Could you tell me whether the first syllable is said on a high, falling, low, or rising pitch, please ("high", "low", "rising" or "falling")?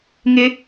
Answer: high